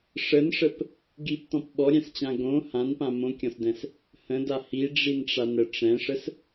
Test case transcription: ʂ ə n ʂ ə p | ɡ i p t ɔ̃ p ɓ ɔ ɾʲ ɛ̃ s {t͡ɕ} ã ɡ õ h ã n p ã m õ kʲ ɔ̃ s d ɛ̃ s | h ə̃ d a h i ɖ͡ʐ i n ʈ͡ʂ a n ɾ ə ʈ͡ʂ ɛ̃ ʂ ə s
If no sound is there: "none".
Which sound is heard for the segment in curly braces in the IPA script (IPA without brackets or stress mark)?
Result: t͡ɕ